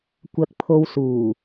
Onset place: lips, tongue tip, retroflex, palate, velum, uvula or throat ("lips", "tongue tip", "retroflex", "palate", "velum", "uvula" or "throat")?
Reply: velum